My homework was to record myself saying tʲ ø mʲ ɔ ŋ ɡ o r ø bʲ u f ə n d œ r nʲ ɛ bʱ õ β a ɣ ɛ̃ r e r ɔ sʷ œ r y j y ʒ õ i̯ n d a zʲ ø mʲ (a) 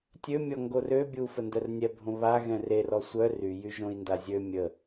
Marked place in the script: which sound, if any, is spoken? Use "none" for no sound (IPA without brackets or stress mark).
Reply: ə